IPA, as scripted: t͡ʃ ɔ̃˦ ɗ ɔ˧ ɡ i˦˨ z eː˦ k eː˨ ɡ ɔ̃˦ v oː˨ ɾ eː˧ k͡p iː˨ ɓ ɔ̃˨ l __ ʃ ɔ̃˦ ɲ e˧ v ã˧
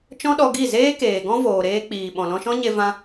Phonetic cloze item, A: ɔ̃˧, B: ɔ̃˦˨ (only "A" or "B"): A